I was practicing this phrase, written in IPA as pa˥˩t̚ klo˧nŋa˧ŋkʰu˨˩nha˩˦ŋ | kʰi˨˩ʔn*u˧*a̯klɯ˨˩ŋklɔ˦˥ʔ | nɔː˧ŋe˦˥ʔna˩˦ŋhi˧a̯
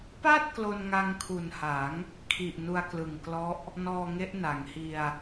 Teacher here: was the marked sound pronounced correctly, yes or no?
yes